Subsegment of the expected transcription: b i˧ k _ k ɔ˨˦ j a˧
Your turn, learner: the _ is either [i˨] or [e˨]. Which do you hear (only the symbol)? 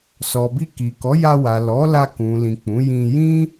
i˨